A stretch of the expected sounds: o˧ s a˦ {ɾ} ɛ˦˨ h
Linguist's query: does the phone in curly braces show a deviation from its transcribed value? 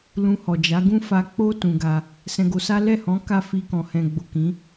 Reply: yes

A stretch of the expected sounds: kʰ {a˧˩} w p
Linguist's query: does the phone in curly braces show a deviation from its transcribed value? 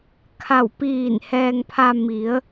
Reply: no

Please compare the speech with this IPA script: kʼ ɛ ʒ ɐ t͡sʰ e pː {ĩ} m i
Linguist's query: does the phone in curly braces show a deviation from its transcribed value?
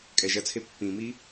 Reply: no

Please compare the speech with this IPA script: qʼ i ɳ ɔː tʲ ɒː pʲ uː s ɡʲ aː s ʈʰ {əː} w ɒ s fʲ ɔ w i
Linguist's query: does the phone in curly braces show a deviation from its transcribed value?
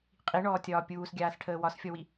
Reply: no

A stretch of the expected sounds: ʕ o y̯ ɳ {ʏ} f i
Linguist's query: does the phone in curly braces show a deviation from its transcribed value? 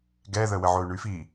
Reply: yes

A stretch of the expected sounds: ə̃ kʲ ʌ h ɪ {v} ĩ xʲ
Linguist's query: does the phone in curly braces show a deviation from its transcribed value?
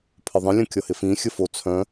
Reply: yes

